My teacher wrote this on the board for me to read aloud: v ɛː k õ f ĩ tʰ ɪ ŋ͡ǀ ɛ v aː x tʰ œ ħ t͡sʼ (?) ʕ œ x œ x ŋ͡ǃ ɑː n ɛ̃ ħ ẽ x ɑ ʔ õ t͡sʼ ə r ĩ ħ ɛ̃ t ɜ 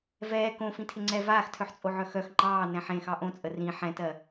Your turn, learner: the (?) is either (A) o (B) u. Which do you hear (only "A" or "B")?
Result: A